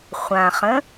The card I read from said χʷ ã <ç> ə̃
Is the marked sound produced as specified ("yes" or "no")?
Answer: no